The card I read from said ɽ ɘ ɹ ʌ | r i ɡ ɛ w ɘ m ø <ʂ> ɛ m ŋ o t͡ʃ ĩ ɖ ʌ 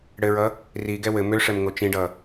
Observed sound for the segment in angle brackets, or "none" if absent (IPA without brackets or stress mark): ʂ